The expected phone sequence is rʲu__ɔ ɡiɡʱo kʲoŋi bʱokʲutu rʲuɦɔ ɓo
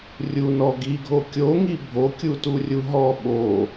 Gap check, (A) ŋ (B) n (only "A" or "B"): B